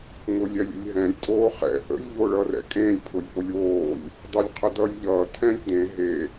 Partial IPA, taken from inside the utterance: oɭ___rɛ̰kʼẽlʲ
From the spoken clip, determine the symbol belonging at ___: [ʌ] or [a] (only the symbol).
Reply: ʌ